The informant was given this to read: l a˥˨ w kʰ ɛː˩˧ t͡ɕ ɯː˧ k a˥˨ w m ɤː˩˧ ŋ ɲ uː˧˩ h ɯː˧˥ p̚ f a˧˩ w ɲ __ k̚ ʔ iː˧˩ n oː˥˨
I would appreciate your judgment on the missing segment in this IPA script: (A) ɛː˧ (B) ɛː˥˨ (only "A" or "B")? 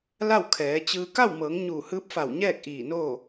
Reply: B